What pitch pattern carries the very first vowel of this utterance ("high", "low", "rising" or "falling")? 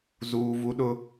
high